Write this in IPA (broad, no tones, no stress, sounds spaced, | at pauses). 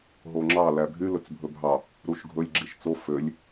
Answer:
ɦ o ŋ͡ǁ ɑ l æ bʱ y l ɵ t͡s bʱ ɵ bʱ ɑ | ɾ u ʃ ɡʱ ɵ lʲ ɡ͡ǁ i ʃ t͡s o f ø lʲ